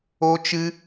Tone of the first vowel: high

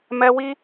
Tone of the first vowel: high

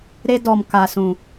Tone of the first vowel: high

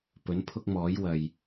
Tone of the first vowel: rising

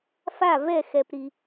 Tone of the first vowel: falling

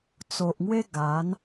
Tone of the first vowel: low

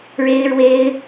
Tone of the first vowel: high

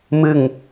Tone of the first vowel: falling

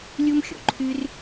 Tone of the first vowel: high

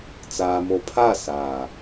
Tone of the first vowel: low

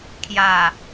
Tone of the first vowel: low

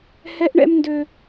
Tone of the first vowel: high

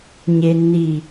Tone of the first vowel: low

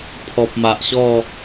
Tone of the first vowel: low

